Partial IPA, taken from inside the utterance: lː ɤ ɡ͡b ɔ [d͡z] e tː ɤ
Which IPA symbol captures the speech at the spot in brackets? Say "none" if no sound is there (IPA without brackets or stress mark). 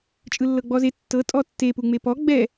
z